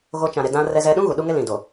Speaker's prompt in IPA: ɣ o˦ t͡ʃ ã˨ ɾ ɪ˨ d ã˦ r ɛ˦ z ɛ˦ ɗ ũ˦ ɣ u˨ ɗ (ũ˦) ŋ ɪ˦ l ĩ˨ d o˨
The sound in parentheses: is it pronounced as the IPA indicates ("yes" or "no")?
no